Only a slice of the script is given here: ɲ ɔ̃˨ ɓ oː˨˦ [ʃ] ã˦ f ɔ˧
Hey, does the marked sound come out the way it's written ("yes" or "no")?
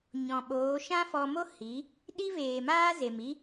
yes